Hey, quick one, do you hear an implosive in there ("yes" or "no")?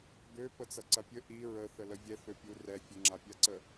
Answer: no